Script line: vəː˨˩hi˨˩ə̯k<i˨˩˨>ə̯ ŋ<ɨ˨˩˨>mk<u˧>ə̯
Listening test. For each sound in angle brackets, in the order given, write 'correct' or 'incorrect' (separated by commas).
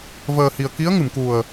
incorrect, correct, incorrect